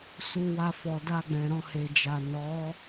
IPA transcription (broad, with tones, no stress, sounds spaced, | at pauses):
s u˧ w a˧ f ɔ˨ d a˧ ɡ͡b ɛ̃˨ ɾ ɔ̃˧ h e˨ d͡ʒ a˨ n ɔ˨˦